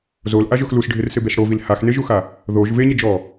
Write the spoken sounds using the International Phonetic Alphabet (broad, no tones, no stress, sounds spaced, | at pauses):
z o l ʔ a ʒ ʊ x l u s ɖʱ ɪ r s ɪ b e s ɽ o v i l h a x n e ʒ u x a | ð o ʒ v e ɲ ɪ d͡ʒ ɔ